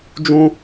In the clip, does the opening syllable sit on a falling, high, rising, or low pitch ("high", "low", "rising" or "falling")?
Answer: high